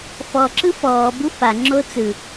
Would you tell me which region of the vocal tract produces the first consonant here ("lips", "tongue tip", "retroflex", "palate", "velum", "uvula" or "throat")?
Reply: lips